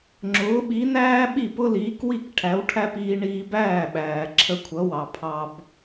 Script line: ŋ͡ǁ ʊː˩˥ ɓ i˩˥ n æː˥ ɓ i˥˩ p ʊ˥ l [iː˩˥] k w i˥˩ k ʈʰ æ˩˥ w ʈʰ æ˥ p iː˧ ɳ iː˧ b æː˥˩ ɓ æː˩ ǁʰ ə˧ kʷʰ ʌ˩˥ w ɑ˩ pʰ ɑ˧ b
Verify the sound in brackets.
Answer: correct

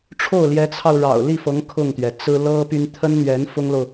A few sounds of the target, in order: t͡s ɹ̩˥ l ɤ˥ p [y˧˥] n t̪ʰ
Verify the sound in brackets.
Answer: incorrect: y˥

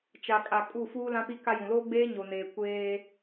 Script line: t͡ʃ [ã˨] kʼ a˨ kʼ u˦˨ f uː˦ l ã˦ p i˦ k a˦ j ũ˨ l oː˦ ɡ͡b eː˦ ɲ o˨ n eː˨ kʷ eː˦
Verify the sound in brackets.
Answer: incorrect: a˨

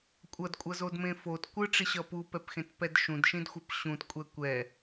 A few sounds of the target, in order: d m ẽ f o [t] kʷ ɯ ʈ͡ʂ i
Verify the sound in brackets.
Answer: correct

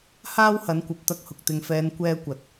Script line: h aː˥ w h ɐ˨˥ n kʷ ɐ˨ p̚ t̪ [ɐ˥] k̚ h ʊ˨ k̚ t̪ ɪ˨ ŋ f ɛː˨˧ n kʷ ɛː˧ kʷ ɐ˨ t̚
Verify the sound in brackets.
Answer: incorrect: ɐ˧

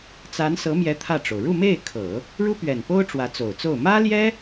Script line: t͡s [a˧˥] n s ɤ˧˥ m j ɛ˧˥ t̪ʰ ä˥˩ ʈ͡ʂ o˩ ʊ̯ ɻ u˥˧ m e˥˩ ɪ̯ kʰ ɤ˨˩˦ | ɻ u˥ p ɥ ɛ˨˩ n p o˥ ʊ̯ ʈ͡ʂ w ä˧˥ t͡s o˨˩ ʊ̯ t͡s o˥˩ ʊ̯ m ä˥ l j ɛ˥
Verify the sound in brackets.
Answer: correct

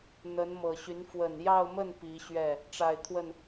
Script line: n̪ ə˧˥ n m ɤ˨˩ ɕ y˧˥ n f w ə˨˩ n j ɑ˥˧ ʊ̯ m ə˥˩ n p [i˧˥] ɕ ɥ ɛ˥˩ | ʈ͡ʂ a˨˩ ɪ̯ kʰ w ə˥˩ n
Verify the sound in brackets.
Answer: correct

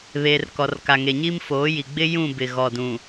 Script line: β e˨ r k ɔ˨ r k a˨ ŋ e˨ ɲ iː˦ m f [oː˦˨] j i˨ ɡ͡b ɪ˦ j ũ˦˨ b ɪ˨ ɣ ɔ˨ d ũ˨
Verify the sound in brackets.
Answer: incorrect: oː˨˦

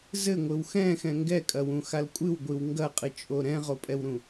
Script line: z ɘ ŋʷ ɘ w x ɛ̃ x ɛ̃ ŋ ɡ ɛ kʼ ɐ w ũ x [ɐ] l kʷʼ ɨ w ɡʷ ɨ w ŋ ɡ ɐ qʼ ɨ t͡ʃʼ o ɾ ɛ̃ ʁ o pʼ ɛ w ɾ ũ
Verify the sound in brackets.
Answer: incorrect: a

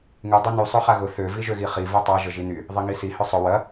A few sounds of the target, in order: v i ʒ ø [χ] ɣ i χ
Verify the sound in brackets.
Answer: incorrect: none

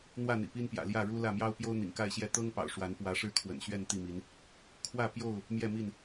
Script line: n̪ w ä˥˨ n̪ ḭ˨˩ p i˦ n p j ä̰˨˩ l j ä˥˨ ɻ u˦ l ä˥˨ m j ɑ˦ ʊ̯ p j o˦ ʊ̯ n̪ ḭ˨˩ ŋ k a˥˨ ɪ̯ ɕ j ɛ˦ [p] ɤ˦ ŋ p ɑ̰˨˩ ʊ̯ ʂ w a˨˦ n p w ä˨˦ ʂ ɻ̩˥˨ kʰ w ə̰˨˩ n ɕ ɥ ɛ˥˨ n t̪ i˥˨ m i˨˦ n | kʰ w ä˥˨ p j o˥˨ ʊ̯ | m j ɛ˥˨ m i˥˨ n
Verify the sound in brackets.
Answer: incorrect: t̪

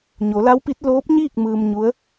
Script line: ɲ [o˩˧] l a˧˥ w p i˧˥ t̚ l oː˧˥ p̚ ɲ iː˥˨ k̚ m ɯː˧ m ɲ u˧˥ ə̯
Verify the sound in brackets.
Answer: correct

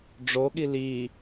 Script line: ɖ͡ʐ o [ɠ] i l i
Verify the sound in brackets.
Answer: correct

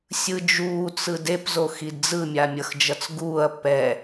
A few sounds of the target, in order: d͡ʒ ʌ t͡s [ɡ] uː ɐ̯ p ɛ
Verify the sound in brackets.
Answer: correct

